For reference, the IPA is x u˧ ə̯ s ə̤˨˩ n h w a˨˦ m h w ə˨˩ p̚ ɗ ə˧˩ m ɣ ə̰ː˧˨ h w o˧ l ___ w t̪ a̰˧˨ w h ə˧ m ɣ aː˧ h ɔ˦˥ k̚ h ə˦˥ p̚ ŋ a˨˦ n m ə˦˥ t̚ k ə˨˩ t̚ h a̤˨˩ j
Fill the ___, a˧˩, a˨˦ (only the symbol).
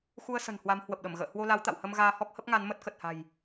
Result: a˨˦